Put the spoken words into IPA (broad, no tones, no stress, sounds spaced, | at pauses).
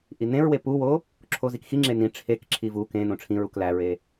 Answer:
ʔ i n ẽ ɹ w e p u w o | ǁʰ o z i k x i ŋ͡ǁ e n ĩ ʈ͡ʂʰ e k ǁʰ i v u k ẽ n õ ʈ͡ʂʰ ĩ ɹ u k l æ ɹ e